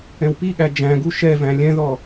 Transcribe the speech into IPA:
ɛ̃wpiɠæ d͡ʒæ̃ɡu ʃɛvæ̃ lʲɛ̃ðɔ

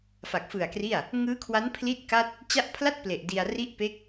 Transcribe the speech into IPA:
fa˨˩k̚fɯ˨˩a̯kri˥˩a̯ | ŋɯː˦˥kʰwa˦˥n pʰli˥˩t̚ka˥˩t̚ | t͡ɕa˦˥ʔpʰla˥˩t̚ ple˨˩ʔdi˧a̯ ri˦˥ʔpe˦˥k̚

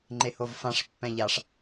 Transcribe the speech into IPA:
ŋ͡ǃehovfãʂ pːɛ̃ʎaʂ

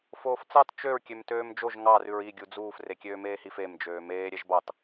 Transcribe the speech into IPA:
foːft͡sɑt t͡ʃøɹ kʲømtøːmd͡ʒoʒ ŋɑ rʉɹi ɡʲud͡zuːf rekʲøːmeːhif em d͡ʒøːmeː ɾʲɛʒbɑt

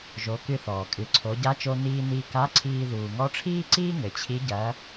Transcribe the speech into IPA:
ʒo˩˧kɨ˧θɔː˩ kʼɨ˩ǀʰo˩˧ ɟa˧˥t͡ʃo˧ niː˧niː˧ ka˧˥ǀʰiː˧ ðuː˩ŋɔ˧˥ʈ͡ʂʰiː˥ǀiː˥ ŋɘ˩˧t͡ɕʰi˧˥ ɟɐː˧˥

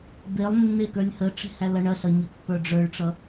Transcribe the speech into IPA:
belˠnːe kə˞lʲhəʈ͡ʂe̤ hælʌɳɐɬʌ ɲəpːə˞ɖ͡ʐə˞ɭʈ͡ʂʌ

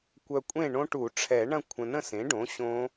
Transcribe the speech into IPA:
kʷœ˨ kʷʼẽ˥˨ɳõ˦˥ʈu˨˩˦ ʈ͡ʂʰɛ˨˩˦ɳɐ̃˥˨kʷʰə̃˨ nə̃˥˨sẽ˩˥ɖõ˩˥ ɕõ˦˥

